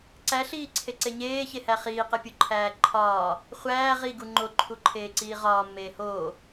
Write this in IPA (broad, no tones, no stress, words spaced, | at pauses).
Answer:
ǀæɬiːǀʰeǀe ɲeːçehæ χiːqepʲuǃʰæː ǃʰɒː | χʷæː ʁiɡu ŋ͡ǃoǃʰuǃʰeːǀiː ʁɒːmːeː hoː